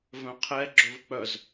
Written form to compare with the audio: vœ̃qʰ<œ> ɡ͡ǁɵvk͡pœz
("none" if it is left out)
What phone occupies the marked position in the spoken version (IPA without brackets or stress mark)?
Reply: ɛ